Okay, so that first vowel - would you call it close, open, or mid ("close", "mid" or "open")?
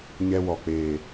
mid